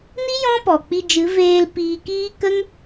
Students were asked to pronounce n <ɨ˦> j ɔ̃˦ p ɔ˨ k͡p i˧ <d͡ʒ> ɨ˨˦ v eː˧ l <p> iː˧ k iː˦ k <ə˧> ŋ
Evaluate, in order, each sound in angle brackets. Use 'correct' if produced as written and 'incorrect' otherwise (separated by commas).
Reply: incorrect, correct, correct, incorrect